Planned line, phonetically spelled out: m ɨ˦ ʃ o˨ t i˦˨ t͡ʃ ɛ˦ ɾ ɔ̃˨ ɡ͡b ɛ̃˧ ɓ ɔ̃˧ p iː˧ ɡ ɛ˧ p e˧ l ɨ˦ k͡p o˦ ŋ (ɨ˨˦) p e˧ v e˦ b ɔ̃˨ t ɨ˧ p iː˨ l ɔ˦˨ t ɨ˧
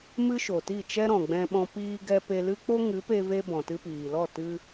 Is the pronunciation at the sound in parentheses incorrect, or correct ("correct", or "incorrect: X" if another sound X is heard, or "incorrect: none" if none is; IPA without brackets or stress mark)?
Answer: correct